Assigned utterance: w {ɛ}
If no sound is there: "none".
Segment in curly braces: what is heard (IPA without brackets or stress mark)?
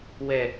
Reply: ɛ